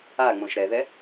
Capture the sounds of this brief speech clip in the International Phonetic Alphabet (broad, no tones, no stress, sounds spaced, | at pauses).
a ŋ͡m õ ʃ ɾ ɛ ð ɛ